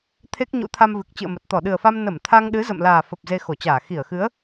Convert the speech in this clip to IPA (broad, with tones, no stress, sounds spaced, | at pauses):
t̪ʰ e˦˥ k̚ ɲ ṵ˧˥ t̪ʰ a˧ m v ɨ˨˩ k̚ t͡ɕ ɨ̰˧˨ ə̯ m ə˨˩ t̚ t̪ ɔ˧˩ ɗ ɨ˨˩ ə̯ f a˧ m n ə˧˩ m t̪ʰ a˧ ŋ ɗ ɨ˨˦ z ə̰˧˨ m l aː˨˩ f ə˨˩ p̚ z e˧ x o˧˩ t͡ɕ aː˧˩ x i˧˩ ə̯ x ɨ˨˦ ə̯